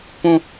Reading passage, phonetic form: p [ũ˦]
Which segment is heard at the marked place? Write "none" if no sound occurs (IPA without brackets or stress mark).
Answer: ũ˦